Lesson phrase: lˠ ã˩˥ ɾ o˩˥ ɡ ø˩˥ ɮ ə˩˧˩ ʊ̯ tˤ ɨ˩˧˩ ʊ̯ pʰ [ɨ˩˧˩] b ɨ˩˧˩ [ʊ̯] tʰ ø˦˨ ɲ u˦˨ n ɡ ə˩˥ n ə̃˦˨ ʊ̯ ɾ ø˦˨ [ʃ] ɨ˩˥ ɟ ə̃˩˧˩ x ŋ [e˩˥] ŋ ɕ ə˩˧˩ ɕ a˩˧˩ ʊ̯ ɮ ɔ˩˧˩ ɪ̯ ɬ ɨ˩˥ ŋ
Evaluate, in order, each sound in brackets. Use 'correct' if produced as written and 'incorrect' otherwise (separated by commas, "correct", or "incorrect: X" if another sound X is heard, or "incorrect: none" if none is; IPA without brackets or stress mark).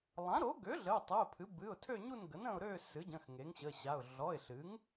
incorrect: ɨ˩˥, correct, incorrect: s, correct